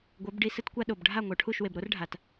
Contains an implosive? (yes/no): yes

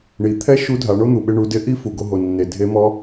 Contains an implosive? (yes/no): yes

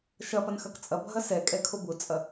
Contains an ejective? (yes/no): yes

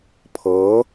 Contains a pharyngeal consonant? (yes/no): no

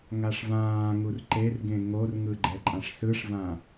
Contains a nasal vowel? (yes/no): yes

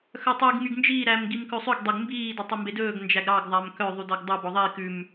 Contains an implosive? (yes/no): no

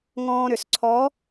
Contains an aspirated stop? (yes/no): yes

